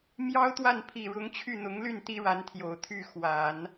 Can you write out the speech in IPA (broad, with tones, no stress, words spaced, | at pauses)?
mjɑ˥ʊ̯t̪wa˥˩npʰi˨˩ ɻʊ˧˥ŋt͡ɕʰy˥˩n̪ʊ˧˥ŋly˥˩n t̪i˥ɻa˧˥nt̪ʰjo˨˩ʊ̯t̪ʰy˥˩ xwa˨˩˦n